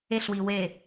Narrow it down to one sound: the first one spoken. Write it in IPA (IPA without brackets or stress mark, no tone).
e